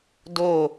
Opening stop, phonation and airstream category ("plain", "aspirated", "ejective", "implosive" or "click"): plain